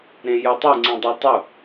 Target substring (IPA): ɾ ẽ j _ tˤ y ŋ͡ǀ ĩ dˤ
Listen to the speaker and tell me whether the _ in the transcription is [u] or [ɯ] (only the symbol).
ɯ